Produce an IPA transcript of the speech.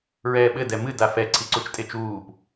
ɹɛːɓɘ dɛmɨ dafɛ ǀʰiǀut͡ʃtʼet͡ʃuːp

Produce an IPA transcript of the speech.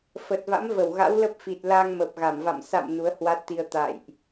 fə˨˩t̚va̰˧˥mvə˧˩w ɣa̰˧˥wlə˦˥p̚fi˨˩t̚ la˧ŋmə˨˩p̚ɣa˧˩mva̰˧˨m sa̰˧˨m nu˨˦ə̯hwa˦˥t̚t̪i˧ə̯ t̪a̰˧˨jʔ

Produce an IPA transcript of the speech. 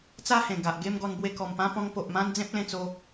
t͡sa˥˧hẽ˨˩ɡa˨ʔ ɡe˥˧m ɡɔ˧nbwe˧kɔ˨˩mpã˦ pɔ̃˧ŋpo˨ʔmã˦n d͡zẽ˦p̚lẽ˧t͡so˧

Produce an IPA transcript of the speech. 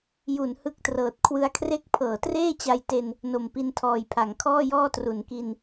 ju˩˦n hɯ˦˥k̚trɤː˨˩t̚kʰwɯ˦˥a̯kʰre˥˩k̚ pʰɤː˩˦treː˥˩t͡ɕa˧jte˧n | no˨˩mpi˧ntʰɔː˨˩jpʰa˩˦ŋ kʰɔː˥˩jɔː˥˩tru˩˦nki˧n

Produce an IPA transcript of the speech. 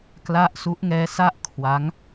kla˥˩ʔ su˦˥ʔŋɛː˦˥ sa˥˩ʔkʰwa˦˥ŋ

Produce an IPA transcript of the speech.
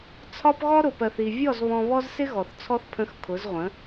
t͡sʰɒ˦pɣɔ˦ ɾʊ˨pɜ˨θi˨vʲɔ˦˨z βɔ̃˧βɔ˦zsɪ˦ɣɔ˨θ t͡sʰɔ˧θpʰə̃˨˦x kʰʊ˨˦zʁʷə̃˨˦

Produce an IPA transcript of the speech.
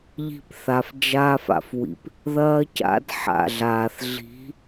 ʎi̤˧pθa˨fd͡ʒaː˧fa̰˨f wḭ˨p | ðɐː˦ca̰˦d ħa̰˨ɮaː˨θ ɮi̤˨˦

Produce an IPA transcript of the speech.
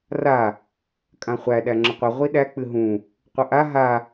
ra | kʼãχʷæ ɗæŋ͡ǁəqʷə ʁʷiɗæ k͡pɨɦũ | qʷəʔa ɦa

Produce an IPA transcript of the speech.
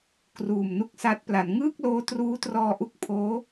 kruː˨˩mnu˦˥k̚sa˦˥t̚ pla˩˦n ŋɯː˥˩k̚loː˧ truː˦˥trɔː˧ʔu˦˥k̚ pʰoː˦˥

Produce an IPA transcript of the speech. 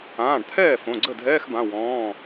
ãː˩˧˩ɖt̪ʰɛː˥˩ fõ˩˧˩ɡ͡ǀə˥˩ dʱɛː˧˥˧xbã˩˧˩ wɔ̃ː˩˧˩

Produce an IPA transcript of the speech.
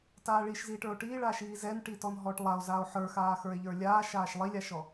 taːɭiʃziːʈə˞o̯ ʈiːɭaːʃiː zɛnʈitɔn ɦɔʈlˠao̯zaːo̯ ħə˞xaːxə˞e̯ ʎə˞lʲaːʃaːʃ lˠilʲaʃɔ

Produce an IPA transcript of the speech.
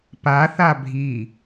pa θabʱi

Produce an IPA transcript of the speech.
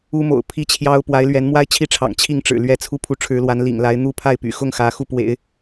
u˥mo̰˨˩ʊ̯pʰi˥t͡ɕʰjɑ˥ʊ̯ pwa˧˥ɪ̯lɥɛ˧˥nmwa˥ɪ̯ t͡ɕʰi˥˩ʈ͡ʂʰɑ̰˨˩ŋ t͡ɕʰi˥˩ŋʈ͡ʂɻ̩˨˩ lɥɛ˥˩t͡sʰu˥pʰu˧˥ ʈ͡ʂʰɻ̩˧˥lwa˧˥n lḭ˨˩ŋla˧˥ɪ̯n̪u˥ pʰa˥˩ɪ̯py̰˨˩ xʊ˥˩ŋ xä˧˥xu˥˩pwḛ˨˩˦ɪ̯

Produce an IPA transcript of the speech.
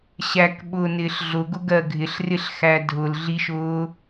ɕækɓʊːnɪːɬ ɮʊɡʊɡɜ ɡʱɪɬrɪɬxæ dʱʊlɮiʃʊː

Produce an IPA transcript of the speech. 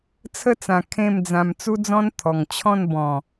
t͡sʰə˥˧t͡sã˨˩ kʰẽ˥˧md͡zã˧m t͡su˦d͡zɔ̃˦n t̪ʰɔ˨˩ŋ t͡ɕʰɔ̃˥˧n bɔ̃˨˩

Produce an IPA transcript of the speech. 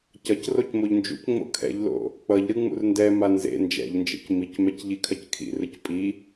cʌcroc moʎnd͡ʒṵcŋ͡mo̰ kʰɛ̰ʎlo̰ | k͡pʌʎɾɯ ŋ͡mṵrndɛma nzḛ nd͡ʒɛ̰ʎnd͡ʒḛc micmɛc ʎikʰʌckʰḭrɯc pʼi

